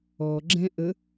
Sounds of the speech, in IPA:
ɔ ɡ͡ǁ ɛ̃ ʔ ə

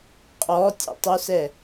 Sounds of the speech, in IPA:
qʼ ɔ tʲ ɛ̰ tˤ u s ɛ

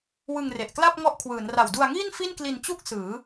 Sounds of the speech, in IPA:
w ɯ˧ ŋ r e˨˩ ʔ k l a˥˩ p̚ ŋ ɔ˦˥ ʔ kʰ w ɯː˩˦ n r a˨˩ w d u˧ a̯ ŋ iː˥˩ n f i˥˩ n k l i˧ n t͡ɕ u˥˩ k̚ s ɯː˩˦

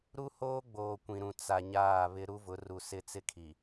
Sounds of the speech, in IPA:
ɾ u˦ h oː˦ ɡ͡b oː˨ kʷ ĩ˨ ɾ ũ˨ t͡s a˨ ɲ aː˦˨ β ɪ˦ ɾ u˦ v ʊ˨˦ r u˨ s ɪ˦˨ t͡s ɪ˦ kʰ i˨

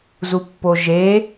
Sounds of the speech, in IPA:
z u pː o ʒ e

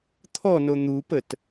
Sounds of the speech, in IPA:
t̪ʰ ɔ n o n̪ u p ə t

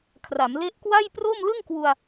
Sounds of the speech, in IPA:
kʰ r a˩˦ m l e˦˥ ʔ k w a˥˩ j p r o˥˩ m l ɯ˥˩ ŋ k w u˧ a̯

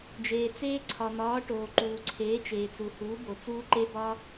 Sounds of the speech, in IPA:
d͡ʒ eː˩ t͡s eː˦˥ ǀʰ ɒ˩ n̪ ɒː˩˥ ʈ oː˩ ǃ uː˩ ǀʰ eː˩˥ t͡ʃ eː˩ t͡s u˩ h uː˩˥ b o˩ t͡s uː˦˥ ǃ e˦˥ b ɒ˦˥

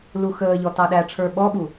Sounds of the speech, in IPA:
l u x əː ʎ ɔ t ɑ ɗ æ ʈ͡ʂʰ ə˞ ɓ ɔ ɓ u

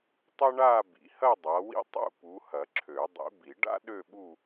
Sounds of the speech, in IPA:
tˤ ɐ˥ ɳ a˥˧ b ḭ˨˦ h ɐ˥˧ dˤ a˨˦ w ḭ˥ tˤ ṵ˥˧ p u˨˦ h ɐ˨˩˦ ǁʰ ø˨˩˦ dˤ ḭ˨˦ b i˨˩˦ ɖ a̰˥ ɗ ø˥˧ ɓ u˥˧

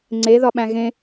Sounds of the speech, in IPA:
ŋ͡ǀ e ð ɒ ɓ æ̃ ɣ ẽ

